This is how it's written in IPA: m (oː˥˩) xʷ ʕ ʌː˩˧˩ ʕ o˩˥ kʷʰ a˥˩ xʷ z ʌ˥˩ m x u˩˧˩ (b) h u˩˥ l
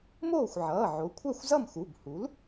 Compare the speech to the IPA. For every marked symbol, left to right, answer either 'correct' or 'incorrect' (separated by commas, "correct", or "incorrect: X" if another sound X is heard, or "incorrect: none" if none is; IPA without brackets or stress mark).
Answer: correct, correct